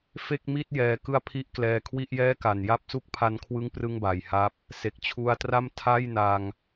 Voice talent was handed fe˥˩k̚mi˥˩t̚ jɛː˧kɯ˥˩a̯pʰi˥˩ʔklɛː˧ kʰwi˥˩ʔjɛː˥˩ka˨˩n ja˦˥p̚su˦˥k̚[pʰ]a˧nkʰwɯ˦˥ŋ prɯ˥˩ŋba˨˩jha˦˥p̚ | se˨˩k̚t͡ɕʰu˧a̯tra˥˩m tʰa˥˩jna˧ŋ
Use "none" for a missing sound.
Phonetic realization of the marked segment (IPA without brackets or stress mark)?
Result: pʰ